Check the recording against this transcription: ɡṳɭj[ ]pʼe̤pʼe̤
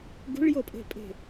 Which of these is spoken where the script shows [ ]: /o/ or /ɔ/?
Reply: o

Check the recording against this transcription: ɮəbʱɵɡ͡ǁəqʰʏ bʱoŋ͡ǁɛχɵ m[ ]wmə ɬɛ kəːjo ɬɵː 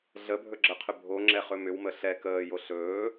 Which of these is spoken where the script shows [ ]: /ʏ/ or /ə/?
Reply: ʏ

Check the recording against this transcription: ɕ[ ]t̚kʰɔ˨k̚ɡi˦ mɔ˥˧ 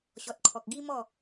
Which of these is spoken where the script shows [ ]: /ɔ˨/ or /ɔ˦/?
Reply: ɔ˨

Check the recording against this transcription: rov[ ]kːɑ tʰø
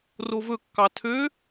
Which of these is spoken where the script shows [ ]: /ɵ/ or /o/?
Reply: ɵ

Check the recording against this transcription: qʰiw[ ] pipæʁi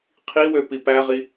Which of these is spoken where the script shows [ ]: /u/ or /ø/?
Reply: ø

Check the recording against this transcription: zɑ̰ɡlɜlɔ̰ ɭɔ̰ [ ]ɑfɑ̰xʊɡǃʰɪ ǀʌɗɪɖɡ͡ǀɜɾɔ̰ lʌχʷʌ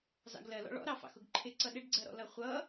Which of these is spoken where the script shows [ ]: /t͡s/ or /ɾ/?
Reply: ɾ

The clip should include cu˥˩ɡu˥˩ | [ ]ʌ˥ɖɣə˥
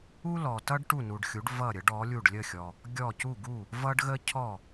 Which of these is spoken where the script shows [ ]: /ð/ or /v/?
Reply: v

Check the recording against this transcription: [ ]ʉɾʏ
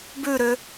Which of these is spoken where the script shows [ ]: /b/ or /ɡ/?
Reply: b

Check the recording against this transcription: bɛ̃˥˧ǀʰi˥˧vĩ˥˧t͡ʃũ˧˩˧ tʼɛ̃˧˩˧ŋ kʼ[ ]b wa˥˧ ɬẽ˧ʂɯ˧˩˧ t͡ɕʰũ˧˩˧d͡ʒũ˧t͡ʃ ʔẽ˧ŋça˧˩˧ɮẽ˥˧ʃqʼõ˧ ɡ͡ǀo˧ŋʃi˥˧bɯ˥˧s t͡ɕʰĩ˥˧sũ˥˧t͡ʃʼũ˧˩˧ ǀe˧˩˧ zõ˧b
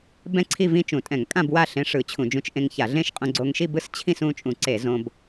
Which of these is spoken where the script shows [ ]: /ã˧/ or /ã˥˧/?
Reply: ã˥˧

